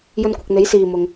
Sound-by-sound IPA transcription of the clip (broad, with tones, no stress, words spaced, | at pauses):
jɵ˧nkʷɪ˨k̚n̪e˨˥j siː˨mʊ˨ŋ